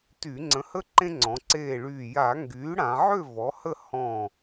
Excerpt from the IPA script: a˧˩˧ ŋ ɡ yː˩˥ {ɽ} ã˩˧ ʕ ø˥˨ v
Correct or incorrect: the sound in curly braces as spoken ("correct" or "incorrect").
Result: correct